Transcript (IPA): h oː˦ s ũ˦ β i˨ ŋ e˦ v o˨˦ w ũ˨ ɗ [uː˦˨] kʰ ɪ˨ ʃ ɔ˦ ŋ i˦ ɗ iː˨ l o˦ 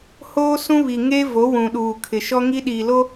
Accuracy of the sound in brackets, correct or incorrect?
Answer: incorrect